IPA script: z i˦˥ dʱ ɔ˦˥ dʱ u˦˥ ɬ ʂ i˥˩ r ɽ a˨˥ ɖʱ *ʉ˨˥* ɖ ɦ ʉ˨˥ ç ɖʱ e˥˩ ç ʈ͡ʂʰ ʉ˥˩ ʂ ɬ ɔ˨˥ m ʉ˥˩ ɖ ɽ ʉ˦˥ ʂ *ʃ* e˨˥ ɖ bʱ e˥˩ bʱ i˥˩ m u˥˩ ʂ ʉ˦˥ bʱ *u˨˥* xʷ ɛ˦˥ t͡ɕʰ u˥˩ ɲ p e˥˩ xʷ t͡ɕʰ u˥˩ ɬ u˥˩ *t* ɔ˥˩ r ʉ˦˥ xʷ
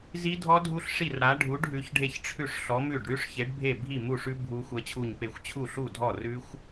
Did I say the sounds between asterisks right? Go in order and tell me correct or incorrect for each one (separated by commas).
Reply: incorrect, incorrect, incorrect, incorrect